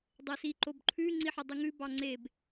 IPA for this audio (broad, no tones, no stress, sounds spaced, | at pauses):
dˤ ɘ s i ǃ o b ǃʰ ʉ ŋ͡ǀ i ħ ɘ dˤ ʉ ŋ ʉ b ɑ ŋ͡ǀ e b